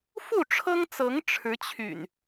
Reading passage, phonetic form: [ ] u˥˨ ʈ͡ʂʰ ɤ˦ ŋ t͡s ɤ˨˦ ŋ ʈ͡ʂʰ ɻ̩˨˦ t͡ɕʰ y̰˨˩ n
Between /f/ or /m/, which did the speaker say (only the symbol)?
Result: f